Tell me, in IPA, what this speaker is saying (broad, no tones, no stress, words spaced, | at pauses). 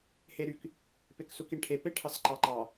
heɾyk | peksukiɳʈʰe peʈʰɑsǃɑǃɑ